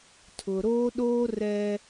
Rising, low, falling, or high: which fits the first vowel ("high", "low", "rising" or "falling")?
low